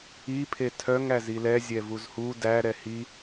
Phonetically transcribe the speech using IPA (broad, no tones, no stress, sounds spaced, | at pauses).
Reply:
i pʰ e tʰ œ ŋ æ z i l ɛ zʲ ɛ v u z h u d æ ɾ ɛ h i